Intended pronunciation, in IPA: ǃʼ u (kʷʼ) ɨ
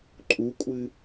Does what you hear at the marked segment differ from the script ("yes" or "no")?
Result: no